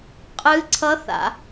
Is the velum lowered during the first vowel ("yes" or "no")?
no